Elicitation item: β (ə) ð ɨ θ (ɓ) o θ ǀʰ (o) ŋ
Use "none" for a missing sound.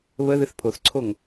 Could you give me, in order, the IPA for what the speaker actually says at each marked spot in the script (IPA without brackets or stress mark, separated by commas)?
ə, pʰ, o